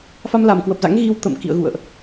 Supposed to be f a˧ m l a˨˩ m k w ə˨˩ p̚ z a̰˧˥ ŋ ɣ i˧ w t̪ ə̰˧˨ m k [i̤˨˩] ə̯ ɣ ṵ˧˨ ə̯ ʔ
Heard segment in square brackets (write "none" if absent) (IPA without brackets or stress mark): ḭ˧˨